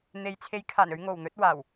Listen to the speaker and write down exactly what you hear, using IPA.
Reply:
n̪ e˨ j t͡sʰ e˨˥ j kʰ aː˨˩ n ɵ˨˧ ɥ ŋ o˨˩ w n̪ ɵ˨˥ t̚ w aː˨˩ w

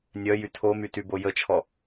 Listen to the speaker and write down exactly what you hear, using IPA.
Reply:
nʲ œ j y tʰ o m y t y b o j ə t͡ʃʰ ɔ

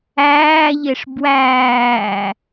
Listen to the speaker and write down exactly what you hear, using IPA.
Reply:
æː ʎ e ʂ b w æː

